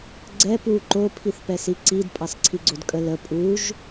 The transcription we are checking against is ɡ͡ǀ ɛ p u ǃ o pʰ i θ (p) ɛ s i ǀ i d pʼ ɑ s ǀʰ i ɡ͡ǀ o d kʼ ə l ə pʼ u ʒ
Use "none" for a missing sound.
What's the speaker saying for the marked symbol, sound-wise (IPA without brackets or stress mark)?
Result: p